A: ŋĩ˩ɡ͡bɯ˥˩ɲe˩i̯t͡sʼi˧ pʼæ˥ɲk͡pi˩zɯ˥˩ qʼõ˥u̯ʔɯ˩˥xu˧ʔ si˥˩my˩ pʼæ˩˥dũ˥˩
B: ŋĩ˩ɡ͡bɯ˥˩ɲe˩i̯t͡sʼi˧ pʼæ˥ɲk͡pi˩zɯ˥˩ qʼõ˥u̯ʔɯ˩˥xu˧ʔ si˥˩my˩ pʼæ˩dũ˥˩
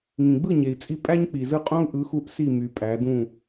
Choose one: A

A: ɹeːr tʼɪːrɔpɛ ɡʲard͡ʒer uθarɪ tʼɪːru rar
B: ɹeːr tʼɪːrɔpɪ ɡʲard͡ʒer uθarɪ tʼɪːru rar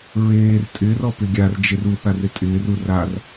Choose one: B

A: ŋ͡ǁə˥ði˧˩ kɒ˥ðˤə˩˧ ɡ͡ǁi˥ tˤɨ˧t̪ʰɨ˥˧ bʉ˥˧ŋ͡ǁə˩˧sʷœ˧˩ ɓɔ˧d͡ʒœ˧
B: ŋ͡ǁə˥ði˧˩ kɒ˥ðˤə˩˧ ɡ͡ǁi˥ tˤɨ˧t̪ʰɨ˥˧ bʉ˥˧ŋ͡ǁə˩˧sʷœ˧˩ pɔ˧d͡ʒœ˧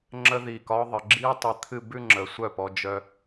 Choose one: B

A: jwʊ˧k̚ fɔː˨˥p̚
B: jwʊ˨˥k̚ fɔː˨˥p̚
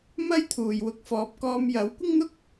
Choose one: B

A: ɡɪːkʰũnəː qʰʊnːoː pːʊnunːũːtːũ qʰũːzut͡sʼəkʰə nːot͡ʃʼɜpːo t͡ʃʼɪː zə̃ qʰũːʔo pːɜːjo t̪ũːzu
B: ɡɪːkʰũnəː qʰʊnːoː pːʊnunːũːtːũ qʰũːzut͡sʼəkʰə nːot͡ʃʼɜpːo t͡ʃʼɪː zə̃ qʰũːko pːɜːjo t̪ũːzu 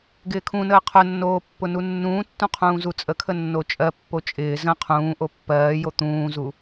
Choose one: A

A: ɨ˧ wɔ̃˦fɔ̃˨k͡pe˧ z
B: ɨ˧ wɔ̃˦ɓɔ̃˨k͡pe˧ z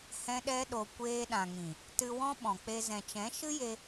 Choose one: B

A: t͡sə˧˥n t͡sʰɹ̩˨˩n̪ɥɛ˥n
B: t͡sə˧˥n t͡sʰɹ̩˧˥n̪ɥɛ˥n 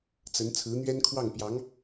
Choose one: B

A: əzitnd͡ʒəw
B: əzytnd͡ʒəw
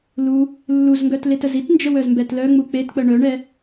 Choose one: A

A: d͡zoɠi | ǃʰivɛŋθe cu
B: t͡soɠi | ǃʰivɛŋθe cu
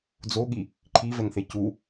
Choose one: A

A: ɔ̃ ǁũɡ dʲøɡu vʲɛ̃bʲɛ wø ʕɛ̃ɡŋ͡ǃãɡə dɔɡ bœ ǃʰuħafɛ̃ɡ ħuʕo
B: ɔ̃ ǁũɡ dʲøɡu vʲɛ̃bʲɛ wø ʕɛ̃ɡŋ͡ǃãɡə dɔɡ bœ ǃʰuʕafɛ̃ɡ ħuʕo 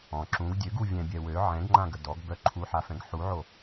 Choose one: A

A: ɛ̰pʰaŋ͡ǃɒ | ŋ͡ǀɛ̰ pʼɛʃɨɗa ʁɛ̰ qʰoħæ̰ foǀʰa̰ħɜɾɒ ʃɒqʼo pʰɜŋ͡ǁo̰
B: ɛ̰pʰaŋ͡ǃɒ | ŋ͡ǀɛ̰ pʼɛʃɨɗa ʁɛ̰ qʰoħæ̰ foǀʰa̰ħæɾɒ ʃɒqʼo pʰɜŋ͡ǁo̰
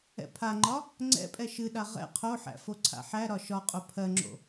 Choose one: B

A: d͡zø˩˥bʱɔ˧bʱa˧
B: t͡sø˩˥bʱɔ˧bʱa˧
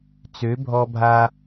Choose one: B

